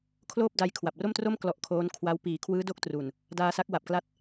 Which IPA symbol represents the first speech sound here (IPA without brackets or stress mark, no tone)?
kʰ